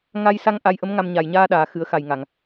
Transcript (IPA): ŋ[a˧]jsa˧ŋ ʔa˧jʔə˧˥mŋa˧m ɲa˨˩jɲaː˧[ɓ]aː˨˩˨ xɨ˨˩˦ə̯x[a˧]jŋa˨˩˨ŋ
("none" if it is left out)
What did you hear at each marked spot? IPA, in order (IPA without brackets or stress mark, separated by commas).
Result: a˧, ɗ, a˨˩